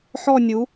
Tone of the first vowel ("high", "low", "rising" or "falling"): falling